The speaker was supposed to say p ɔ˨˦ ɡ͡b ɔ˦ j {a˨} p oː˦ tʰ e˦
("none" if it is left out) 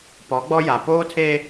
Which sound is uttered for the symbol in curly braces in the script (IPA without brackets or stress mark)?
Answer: a˨